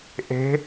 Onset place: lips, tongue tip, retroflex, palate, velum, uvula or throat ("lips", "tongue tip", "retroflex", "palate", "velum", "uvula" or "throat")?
throat